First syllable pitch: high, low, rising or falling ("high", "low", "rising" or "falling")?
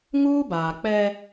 high